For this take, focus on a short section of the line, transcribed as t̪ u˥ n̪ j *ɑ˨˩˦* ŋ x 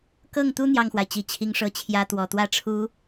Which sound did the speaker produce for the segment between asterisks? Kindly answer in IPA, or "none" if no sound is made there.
ɑ˥˩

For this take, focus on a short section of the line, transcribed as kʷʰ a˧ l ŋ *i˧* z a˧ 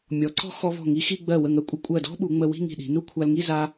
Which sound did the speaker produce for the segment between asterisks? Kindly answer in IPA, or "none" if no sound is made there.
i˥˧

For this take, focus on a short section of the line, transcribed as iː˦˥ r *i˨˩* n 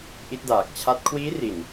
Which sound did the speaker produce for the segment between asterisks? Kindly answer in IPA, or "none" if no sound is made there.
i˨˩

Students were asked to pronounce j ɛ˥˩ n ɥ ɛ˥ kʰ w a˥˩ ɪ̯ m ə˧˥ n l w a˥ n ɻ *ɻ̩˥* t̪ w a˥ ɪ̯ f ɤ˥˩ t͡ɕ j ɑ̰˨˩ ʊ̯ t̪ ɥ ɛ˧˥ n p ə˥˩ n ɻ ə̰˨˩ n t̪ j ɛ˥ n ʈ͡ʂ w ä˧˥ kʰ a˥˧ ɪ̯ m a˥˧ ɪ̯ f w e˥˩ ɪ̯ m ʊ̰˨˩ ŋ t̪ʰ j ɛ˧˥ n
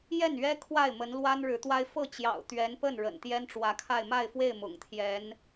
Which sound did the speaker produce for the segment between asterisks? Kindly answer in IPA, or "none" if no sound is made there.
ɻ̩˧˥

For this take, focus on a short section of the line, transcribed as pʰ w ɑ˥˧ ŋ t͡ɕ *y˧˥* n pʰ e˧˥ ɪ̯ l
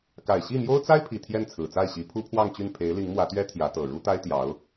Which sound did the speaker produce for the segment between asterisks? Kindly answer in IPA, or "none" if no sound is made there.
y˥˩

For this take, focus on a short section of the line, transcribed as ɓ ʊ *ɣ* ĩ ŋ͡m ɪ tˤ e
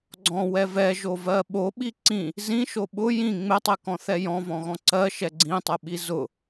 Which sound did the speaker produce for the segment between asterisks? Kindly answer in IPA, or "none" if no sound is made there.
j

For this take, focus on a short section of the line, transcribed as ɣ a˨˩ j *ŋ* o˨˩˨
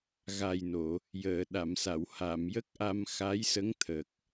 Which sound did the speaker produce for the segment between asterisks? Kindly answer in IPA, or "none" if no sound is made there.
n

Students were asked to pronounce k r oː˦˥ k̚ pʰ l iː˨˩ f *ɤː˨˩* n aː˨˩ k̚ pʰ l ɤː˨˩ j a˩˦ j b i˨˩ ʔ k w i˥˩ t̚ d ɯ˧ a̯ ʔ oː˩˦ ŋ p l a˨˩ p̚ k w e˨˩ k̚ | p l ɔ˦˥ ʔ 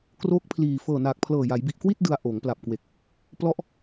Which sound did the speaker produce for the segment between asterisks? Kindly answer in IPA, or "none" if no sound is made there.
ɤː˨˩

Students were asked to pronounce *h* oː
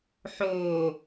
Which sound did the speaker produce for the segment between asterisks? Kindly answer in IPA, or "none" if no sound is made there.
ħ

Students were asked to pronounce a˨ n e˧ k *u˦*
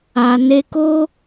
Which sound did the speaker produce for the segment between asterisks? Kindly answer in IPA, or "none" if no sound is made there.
o˦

